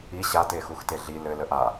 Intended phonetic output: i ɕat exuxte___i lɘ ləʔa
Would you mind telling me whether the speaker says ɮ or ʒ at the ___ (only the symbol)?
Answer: ɮ